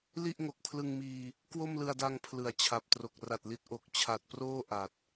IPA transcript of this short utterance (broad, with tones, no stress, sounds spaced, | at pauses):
l i˥˩ ʔ ŋ o˨˩ k̚ pʰ l ɯ˧ ŋ m iː˧ | k w o˥˩ m l ɯ˧ a̯ d a˧ ŋ pʰ l ɯ˩˦ a̯ t͡ɕʰ a˨˩ p̚ t r o˨˩ k̚ r a˨˩ t̚ l i˦˥ t̚ ʔ o˨˩ k̚ t͡ɕʰ a˨˩ t̚ p r oː˥˩ ʔ a˨˩ t̚